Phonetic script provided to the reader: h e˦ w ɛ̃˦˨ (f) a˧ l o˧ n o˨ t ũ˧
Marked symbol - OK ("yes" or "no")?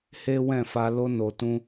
yes